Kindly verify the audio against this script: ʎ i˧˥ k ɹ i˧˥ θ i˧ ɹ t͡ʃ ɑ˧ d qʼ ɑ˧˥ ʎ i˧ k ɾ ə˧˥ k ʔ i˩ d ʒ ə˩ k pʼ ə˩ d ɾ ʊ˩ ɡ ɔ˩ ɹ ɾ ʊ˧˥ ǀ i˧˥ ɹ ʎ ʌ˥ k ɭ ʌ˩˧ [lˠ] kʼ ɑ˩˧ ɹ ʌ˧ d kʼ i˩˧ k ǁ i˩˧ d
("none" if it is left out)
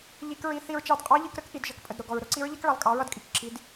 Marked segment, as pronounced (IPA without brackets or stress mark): lˠ